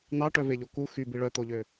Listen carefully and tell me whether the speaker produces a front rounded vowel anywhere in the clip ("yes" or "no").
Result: yes